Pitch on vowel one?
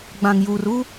low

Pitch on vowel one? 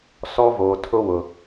high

